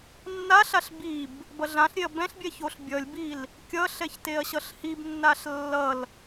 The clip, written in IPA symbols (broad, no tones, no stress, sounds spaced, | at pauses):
nː a ɬ a ɬ b i b | b ʌ ɮ ã ɬ ɾʲ e ɐ̯ b ɛ̃ ɬ bʲ ɛ ç o ɬ bʲ ʌ lʲ b i l | kʲ ʌ ɬ ɛ ç t e ɐ̯ ɕ ʌ ɬ h i b nː a ɬ lː ʌ l